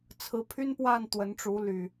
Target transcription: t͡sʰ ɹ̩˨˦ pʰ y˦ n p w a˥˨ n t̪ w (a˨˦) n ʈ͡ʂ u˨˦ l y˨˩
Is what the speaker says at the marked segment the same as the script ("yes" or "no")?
no